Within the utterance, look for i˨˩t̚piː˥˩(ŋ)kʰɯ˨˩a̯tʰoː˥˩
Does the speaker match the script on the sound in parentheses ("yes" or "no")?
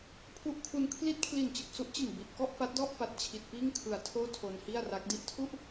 yes